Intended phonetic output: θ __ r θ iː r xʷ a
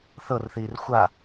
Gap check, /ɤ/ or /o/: ɤ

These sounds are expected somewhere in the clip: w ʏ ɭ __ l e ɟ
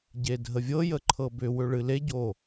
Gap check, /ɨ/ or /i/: ɨ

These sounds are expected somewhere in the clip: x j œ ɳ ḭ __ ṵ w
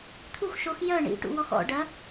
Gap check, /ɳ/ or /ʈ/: ʈ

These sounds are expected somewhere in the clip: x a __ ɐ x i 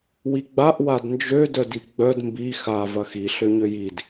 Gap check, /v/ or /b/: v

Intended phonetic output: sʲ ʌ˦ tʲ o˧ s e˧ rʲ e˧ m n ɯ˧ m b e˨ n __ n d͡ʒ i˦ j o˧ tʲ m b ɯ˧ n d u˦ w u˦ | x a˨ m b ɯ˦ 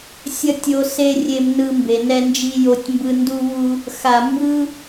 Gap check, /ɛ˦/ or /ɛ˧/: ɛ˦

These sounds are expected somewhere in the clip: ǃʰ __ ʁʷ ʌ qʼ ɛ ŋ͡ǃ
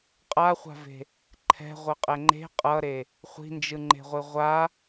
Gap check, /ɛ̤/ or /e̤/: ɛ̤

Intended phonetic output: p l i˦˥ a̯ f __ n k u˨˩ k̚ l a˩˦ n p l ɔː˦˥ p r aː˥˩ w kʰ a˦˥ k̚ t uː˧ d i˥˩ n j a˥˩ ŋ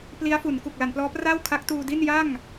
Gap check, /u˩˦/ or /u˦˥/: u˩˦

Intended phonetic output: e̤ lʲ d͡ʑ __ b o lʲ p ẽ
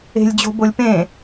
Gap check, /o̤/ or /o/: o̤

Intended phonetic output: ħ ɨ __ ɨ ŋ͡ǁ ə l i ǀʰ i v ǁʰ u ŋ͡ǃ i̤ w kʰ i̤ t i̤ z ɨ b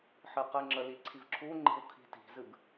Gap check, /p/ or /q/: q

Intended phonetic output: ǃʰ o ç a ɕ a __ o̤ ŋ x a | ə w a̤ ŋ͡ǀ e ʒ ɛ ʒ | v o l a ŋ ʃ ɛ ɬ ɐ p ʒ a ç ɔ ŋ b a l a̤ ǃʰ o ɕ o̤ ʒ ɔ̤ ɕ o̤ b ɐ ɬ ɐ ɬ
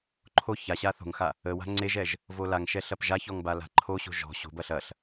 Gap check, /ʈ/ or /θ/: θ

